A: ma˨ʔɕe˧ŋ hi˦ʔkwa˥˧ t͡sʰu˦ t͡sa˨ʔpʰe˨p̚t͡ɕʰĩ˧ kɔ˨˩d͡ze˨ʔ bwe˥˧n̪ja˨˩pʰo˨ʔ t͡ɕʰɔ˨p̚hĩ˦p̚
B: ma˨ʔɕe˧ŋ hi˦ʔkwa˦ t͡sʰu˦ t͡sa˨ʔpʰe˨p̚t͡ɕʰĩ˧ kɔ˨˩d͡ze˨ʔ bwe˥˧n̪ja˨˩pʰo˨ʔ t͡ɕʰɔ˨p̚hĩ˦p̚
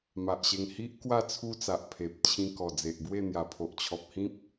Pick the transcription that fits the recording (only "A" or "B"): A